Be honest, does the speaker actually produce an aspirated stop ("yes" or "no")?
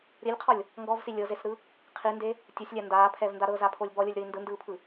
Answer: yes